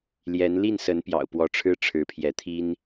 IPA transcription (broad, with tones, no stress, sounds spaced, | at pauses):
l j ɛ˧˥ n l i˥˩ n s ə˧˥ n p j ɑ̰˨˩ ʊ̯ p w ɔ˧˥ ʈ͡ʂʰ ɻ̩˥ ʈ͡ʂʰ ɻ̩˧˥ pʰ j ɛ˧˥ t̪ʰ i˥ n